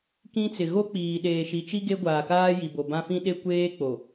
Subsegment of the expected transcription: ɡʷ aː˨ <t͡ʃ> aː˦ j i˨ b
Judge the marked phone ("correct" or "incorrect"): incorrect